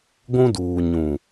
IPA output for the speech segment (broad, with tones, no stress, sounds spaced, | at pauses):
ɡʷ ũ˦ d uː˨ ɲ ũ˨